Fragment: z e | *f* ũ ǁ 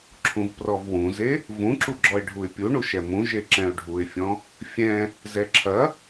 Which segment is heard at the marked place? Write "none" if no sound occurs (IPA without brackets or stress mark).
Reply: v